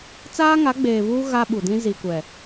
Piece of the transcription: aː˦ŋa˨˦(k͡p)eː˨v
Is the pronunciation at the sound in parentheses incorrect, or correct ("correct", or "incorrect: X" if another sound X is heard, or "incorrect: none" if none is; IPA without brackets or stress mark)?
incorrect: ɡ͡b